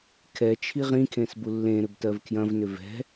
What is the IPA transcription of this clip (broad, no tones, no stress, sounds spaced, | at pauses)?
kʰ ɛ t͡ʃʰ i ʁ ĩ kʰ ẽ s b u lː ẽ ɾ ʏ b t ɜ v kʰ j ɐ̃ v n ʏ v ɛ̤